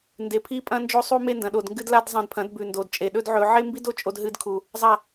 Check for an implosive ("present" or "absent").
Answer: present